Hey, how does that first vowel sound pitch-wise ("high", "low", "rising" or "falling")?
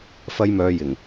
high